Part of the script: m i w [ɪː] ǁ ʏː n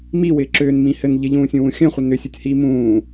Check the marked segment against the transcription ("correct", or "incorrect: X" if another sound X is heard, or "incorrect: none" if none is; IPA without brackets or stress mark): correct